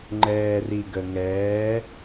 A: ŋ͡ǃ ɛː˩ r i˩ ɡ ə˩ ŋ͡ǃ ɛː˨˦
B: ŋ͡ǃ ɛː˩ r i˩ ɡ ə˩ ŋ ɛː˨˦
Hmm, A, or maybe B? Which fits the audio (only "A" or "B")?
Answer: B